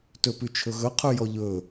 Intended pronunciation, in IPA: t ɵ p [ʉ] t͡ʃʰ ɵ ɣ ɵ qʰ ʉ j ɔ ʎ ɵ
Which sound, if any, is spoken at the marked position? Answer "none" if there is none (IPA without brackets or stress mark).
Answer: ʉ